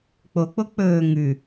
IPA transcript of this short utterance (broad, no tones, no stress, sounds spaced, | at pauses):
k͡p o k͡p o k͡p ɵː ŋ ʉ